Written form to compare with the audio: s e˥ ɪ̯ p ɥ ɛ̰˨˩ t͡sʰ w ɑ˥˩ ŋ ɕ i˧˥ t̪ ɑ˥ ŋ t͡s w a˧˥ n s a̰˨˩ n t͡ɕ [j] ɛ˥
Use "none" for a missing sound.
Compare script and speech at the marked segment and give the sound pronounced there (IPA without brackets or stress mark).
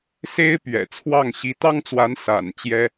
j